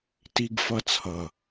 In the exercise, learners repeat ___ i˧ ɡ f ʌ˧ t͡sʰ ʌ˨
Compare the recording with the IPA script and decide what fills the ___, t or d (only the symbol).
t